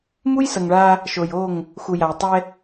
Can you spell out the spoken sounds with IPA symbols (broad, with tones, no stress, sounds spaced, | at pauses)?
m u˦ j s ʌ˨ ŋ ɭ a˦ | ʃ o˨ j o˦˨ ŋ | x u˨ j a˨ j tˤ ɛ˦